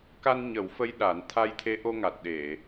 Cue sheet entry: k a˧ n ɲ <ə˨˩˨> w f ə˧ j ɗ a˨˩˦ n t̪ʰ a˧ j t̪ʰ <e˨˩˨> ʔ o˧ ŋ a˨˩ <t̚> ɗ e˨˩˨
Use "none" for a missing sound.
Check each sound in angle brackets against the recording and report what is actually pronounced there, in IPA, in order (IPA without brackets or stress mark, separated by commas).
ə˨˩˦, e˧˥, t̚